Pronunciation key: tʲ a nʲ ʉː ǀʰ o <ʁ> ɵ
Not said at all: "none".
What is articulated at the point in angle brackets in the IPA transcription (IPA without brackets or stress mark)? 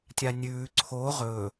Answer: ʁ